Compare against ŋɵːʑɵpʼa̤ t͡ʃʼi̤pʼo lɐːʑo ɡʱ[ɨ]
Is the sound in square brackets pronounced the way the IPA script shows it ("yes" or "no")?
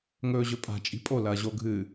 yes